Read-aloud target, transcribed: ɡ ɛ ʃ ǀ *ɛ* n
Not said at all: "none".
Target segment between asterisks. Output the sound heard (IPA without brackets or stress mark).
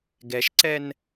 ɛ